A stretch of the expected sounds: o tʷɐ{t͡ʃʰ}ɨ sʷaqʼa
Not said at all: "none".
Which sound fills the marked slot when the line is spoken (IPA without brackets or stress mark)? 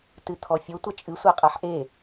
t͡ʃʼ